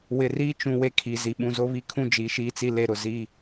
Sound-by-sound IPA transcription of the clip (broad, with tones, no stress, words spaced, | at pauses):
wɪ˨riː˦t͡ʃũ˨ we˦kʰi˨zi˨ ɓũ˨zo˦βi˦kʰũ˦ d͡ʒi˨˦ʃiː˦t͡si˦ le˦ɾʊ˨ zi˦